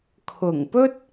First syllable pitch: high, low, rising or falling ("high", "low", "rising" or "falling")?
low